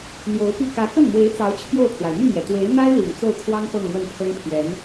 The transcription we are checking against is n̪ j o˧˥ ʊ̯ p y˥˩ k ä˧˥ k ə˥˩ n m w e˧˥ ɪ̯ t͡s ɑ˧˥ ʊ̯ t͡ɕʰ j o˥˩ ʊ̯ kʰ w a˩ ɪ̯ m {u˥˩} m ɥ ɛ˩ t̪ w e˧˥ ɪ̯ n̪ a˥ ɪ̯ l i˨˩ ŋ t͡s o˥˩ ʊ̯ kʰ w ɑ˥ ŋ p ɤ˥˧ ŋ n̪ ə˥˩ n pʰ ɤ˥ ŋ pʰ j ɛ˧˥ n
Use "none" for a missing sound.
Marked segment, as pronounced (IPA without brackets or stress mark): y˥˩